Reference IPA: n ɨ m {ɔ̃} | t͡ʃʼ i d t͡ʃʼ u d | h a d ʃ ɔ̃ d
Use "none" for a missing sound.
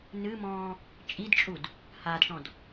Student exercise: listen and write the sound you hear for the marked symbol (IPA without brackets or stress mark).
ɔ̃ː